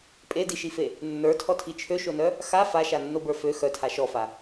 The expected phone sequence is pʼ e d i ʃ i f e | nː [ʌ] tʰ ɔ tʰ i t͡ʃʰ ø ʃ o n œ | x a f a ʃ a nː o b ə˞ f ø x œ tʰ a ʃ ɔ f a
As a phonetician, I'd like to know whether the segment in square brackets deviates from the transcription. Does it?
yes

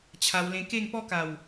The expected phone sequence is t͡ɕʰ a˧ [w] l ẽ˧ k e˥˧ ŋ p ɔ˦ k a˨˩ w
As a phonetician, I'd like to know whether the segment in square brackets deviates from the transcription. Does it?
no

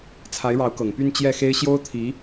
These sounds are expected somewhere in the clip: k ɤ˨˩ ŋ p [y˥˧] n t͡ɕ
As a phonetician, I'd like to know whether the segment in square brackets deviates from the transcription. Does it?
no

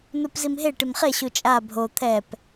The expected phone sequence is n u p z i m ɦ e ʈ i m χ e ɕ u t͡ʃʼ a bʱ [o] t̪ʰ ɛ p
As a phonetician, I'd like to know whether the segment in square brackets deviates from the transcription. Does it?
no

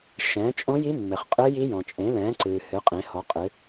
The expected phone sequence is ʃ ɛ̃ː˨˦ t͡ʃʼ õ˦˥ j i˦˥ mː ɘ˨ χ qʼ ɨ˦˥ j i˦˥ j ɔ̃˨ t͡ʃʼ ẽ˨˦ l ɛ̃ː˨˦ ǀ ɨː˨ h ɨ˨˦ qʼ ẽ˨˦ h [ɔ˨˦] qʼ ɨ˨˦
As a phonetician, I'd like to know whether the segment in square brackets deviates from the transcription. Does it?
no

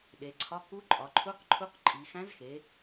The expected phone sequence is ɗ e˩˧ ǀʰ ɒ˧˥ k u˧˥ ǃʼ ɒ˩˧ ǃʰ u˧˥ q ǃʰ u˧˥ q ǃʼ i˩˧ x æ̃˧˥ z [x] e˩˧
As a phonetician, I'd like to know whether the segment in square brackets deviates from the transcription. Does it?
no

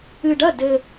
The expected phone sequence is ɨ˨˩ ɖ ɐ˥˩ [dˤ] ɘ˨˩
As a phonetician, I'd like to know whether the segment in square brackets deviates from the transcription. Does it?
yes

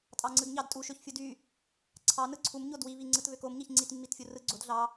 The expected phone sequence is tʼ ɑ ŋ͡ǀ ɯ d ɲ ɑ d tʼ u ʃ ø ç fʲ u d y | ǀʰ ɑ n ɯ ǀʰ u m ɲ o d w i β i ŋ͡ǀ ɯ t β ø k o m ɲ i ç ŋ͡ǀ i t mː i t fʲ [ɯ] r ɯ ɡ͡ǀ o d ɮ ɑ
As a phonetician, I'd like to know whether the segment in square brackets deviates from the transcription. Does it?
yes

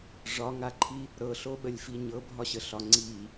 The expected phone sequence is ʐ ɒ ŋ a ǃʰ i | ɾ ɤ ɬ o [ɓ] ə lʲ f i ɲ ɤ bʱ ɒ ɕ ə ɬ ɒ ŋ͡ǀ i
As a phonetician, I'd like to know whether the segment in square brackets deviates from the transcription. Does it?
no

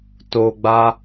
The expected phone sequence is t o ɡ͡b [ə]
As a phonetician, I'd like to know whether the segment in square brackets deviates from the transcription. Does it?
yes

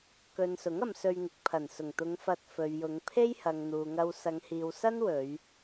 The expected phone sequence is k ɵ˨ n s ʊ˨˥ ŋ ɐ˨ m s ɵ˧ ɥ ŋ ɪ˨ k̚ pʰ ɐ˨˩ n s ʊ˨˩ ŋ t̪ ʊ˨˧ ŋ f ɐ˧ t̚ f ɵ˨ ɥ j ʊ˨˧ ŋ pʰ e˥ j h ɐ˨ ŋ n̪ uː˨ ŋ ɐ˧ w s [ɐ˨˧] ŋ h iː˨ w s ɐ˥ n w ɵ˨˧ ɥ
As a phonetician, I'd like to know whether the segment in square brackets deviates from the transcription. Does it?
no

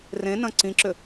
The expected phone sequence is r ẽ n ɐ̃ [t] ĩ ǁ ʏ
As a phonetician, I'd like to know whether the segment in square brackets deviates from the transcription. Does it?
yes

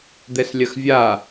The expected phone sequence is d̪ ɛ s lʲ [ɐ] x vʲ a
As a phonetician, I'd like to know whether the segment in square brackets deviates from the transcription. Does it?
no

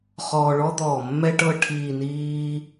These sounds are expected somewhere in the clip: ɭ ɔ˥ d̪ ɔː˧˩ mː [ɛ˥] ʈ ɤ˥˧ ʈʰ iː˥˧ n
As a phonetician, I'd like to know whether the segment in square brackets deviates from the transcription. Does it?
no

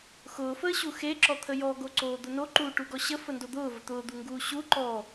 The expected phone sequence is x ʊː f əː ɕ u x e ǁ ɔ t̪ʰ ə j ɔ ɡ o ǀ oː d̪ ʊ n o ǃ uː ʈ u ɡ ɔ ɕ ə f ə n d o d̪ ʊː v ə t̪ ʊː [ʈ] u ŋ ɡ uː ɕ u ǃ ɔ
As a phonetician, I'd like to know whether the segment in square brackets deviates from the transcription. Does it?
yes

